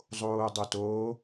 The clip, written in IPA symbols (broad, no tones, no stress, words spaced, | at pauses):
zˤoːdˤoto